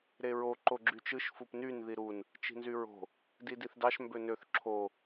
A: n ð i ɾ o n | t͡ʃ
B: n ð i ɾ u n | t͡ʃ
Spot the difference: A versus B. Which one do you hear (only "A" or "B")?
B